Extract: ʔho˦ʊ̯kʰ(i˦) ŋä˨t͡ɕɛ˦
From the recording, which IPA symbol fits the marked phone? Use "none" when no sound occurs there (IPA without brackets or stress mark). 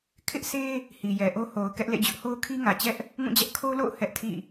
i˦